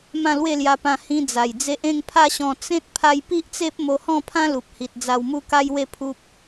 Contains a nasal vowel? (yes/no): yes